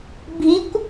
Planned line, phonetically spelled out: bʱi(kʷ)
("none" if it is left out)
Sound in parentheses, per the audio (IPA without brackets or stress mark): kʷ